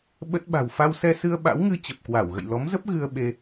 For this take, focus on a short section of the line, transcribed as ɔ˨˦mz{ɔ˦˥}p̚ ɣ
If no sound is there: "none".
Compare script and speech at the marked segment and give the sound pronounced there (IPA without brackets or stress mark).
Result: ə˦˥